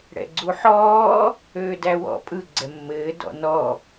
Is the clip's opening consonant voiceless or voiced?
voiced